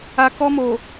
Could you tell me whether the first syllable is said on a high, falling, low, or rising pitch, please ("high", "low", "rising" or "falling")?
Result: low